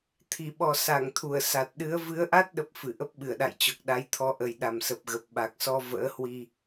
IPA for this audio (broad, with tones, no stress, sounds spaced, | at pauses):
t̪ʰ i˧˩ ɓ ɔ˨˩ s a˧˩ ŋ t̪ʰ u˧˩ ə̯ s a˨˩ t̚ ɗ ɨ˨˦ ə̯ v ɨ˨˦ ə̯ ʔ a˦˥ t̚ ɗ ə˦˥ p̚ f ɨ˧˩ ʔ ə˦˥ p̚ ɓ ɨ˧˩ ə̯ ɗ a̰˧˨ j t͡ɕ ɔ˨˩ k̚ ɗ a˨˦ j t̪ʰ ɔ˧ ʔ ə˨˩ j ɗ a˨˩ m s ə˨˩ p̚ ɣ ə˨˩ p̚ ɓ a˨˩ k̚ s ɔ˧ v ə̰ː˧˥ h w i˧